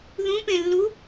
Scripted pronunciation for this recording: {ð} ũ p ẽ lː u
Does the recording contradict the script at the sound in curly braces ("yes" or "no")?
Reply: no